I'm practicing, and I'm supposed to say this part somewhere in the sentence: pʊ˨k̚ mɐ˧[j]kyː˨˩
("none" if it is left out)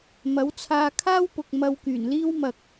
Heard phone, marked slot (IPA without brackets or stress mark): w